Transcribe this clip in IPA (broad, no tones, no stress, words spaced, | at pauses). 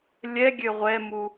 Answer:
lʲɛɡʲø ʁʷɛmu